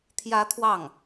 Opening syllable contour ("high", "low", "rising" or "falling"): rising